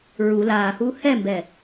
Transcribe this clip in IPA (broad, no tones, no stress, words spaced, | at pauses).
ɹu laːhuː hɛmbɛ